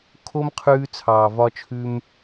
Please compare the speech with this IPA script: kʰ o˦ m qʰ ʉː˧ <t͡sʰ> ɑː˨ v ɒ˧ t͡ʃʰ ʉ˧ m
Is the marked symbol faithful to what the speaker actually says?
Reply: yes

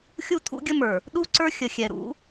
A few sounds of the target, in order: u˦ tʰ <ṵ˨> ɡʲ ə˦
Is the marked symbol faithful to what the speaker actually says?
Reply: no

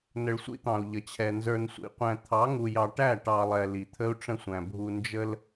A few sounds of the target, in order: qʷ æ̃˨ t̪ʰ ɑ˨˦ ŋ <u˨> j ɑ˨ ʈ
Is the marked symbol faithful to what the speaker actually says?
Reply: yes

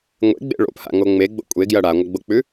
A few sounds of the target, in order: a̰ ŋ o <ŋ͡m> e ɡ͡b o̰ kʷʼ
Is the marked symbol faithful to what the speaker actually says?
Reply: yes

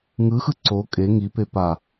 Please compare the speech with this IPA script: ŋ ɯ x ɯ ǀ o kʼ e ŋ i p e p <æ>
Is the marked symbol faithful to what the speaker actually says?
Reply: no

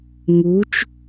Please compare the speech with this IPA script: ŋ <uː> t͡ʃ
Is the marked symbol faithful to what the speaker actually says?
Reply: yes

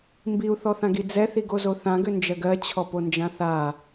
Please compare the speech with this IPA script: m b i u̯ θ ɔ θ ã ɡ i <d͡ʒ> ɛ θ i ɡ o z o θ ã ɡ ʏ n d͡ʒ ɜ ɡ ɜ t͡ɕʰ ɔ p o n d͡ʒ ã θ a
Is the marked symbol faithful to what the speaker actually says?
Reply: no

